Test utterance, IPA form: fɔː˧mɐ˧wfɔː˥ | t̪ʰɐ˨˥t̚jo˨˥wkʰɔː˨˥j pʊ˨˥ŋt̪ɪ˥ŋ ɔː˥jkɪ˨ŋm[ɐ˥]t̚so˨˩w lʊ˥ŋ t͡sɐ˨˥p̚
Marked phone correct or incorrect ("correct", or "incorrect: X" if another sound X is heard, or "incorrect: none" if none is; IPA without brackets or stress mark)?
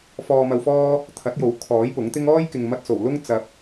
incorrect: ɐ˧